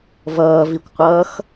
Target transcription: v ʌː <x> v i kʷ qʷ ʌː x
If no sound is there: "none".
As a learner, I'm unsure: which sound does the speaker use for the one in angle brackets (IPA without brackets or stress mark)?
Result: none